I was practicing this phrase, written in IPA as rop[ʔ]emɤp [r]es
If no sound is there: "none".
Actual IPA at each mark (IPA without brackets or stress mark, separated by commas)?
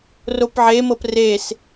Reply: ʕ, r